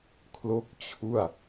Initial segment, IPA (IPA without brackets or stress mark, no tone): kʰ